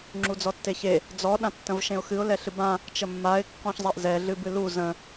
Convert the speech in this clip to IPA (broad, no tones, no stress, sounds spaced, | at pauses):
ŋ͡ǁ u d͡z ɔ tː e ç e | d͡z ɔ ɗ ã tː ə̃ v ʃ ẽ ʊ̯ x ɨ ʊ̯ l ɛ ɬ ɨ b ã | t͡ʃ ə mː a ɪ̯ kː ɔ̃ ç zˤ a ʔ z ɛ ɮ ɨ b ɨ l u z ə̃